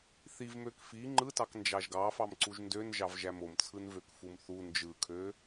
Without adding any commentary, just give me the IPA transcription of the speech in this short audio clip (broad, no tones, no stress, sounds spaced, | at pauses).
θ i v m ø k f i ŋ͡ǃ ɯ t ɑ k n d͡ʒ ɑ ʒ ɡ ɑ f ɑ m ǀ u ʒ n d ø n ʒ ɑ v ʒ æ m o m t͡sʰ ɯ n v ø k f u m θ u n d͡ʒ ɯ kʰ ø